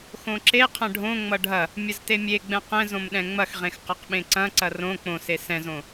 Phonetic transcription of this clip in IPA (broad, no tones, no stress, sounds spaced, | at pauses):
x õ ǁ e qʰ ɐ̃ ɖʱ õ ŋ͡m ʌ ɖʱ ɐ | mʲ ɐ z t e mʲ e ɡ͡b ɛ̃ q ɛ̃ z õ m ɗ ɛ̃ ŋ͡m ɐ x ʁ ẽ x q ɐ q ɓ ẽ ǀ ɐ̃ ǀ ɐ r õ k͡p õ s e s ɛ̃ z õ